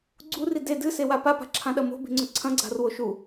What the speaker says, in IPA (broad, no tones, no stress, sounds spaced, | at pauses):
ɡ͡ǀ u r i d e d ɨ s e w a p a p a̤ ǁʰ ã ɗ ɐ m o̤ b i̤ ŋ͡ǀ ɵ ǀʰ ɐ̃ ɡ͡ǀ a̤ r w o ʃ u